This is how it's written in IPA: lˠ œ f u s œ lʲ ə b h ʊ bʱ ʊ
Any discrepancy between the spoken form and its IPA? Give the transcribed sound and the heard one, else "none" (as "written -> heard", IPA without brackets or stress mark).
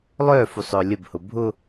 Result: s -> sˤ